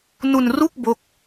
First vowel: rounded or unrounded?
rounded